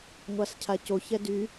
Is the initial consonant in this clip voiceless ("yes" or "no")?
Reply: no